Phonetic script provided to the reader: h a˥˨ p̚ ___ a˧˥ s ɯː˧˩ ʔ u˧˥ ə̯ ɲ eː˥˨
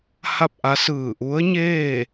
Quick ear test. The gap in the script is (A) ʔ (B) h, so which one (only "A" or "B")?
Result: A